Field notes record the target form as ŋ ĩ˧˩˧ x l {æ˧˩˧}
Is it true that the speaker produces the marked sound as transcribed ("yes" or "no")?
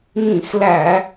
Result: yes